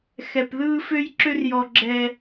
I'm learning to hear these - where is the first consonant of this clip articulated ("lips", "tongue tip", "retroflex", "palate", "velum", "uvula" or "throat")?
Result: velum